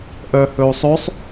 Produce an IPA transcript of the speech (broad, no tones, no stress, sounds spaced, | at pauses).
ʔ œ h ɵ u̯ sˤ ɵ sˤ